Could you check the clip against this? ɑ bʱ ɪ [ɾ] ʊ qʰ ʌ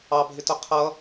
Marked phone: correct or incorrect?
incorrect